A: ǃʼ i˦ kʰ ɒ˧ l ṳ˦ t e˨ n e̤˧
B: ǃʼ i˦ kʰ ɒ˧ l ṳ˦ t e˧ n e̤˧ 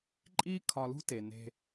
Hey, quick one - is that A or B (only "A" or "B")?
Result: A